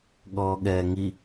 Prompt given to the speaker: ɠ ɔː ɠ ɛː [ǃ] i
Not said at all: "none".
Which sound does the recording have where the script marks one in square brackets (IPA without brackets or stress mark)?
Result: ŋ